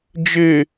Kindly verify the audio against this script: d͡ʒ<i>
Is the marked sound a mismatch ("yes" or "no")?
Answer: yes